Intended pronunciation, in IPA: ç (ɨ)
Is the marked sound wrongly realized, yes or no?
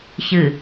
no